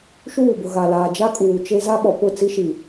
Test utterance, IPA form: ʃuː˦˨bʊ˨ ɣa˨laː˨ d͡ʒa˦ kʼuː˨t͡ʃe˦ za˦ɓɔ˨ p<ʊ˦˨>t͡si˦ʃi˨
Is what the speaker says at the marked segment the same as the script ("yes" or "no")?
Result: yes